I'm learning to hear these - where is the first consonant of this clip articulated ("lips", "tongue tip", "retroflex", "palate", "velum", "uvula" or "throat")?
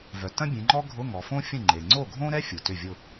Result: lips